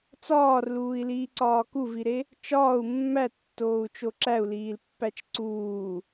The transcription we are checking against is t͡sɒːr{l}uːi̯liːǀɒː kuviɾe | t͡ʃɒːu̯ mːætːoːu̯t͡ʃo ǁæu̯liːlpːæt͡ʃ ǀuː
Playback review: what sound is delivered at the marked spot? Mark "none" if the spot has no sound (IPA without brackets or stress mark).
l